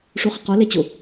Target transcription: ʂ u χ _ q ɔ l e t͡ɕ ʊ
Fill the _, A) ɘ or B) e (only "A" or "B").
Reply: A